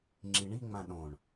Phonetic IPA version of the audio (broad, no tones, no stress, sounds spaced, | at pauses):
ŋ͡ǁ i ɳ i ŋ͡m ã ɗ õ ɳ